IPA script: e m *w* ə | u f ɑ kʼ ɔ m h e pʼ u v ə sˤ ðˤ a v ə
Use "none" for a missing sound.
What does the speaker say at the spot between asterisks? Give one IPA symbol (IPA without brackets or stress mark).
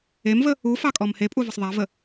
v